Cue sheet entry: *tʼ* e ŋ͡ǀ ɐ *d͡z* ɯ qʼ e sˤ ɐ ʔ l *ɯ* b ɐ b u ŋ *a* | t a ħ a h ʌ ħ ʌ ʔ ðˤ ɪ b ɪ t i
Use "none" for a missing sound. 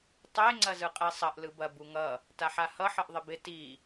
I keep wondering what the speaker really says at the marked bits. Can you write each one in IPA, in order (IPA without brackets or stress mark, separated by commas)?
tˤ, z, ɯ, ʌ